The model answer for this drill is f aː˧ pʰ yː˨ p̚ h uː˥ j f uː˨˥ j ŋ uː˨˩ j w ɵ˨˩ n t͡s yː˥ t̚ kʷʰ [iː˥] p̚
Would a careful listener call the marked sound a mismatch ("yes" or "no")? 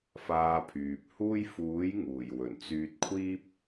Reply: no